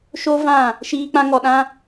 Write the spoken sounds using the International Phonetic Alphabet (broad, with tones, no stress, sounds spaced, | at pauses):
ʃ o˦ v ã˦˨ | ʃ iː˦ k͡p ã˦ ŋ ɔ˨ ɗ ã˦